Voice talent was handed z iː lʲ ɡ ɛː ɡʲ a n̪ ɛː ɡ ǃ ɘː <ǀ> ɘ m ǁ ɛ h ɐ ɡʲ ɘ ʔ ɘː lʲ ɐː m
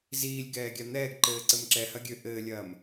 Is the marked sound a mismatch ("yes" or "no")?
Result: no